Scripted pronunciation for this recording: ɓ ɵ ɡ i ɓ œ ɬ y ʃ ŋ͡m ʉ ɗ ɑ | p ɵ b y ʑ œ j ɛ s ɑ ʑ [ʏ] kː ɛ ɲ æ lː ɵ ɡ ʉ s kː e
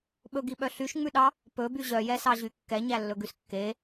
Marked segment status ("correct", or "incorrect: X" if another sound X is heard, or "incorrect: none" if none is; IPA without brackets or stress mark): incorrect: y